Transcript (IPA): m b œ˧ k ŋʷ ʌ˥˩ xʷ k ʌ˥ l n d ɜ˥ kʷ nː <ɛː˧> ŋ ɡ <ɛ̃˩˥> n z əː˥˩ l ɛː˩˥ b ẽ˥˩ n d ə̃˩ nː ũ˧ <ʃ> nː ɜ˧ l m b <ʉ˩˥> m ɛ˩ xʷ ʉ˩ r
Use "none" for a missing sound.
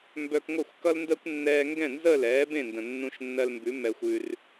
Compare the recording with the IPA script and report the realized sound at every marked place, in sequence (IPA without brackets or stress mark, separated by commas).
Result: ɛː˧, ɛ̃˥˩, ʃ, ʉ˩˥